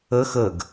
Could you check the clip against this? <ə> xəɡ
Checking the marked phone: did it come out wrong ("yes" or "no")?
no